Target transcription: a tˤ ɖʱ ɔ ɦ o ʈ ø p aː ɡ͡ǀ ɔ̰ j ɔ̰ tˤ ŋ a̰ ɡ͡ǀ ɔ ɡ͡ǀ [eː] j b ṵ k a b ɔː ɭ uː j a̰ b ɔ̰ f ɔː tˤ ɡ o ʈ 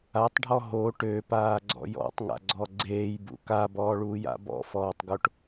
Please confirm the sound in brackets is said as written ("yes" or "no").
yes